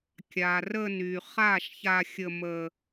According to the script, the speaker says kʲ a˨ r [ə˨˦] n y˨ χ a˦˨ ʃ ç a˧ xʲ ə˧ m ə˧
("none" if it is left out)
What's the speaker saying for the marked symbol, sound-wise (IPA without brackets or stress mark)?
ə˧